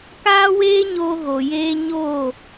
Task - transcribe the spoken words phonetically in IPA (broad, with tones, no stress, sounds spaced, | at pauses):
k aː˦ w eː˦ ɲ oː˧ ɣ o˨ j eː˧ ɲ oː˦˨